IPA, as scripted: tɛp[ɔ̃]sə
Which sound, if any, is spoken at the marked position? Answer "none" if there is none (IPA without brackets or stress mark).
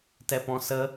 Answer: ɔ̃